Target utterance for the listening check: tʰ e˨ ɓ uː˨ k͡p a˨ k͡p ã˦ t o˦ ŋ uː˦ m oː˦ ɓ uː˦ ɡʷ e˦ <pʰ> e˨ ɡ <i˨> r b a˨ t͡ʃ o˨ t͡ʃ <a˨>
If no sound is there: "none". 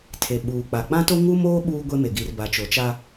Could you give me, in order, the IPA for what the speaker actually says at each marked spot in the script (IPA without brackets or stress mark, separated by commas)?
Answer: m, i˨, a˦